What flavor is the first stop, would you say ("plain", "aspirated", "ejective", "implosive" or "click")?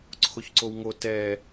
click